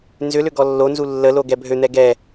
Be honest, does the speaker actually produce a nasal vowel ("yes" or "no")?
no